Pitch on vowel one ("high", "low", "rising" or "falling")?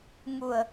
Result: low